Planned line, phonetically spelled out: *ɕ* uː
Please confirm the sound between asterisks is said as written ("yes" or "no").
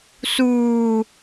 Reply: no